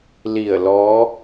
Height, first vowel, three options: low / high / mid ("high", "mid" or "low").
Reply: high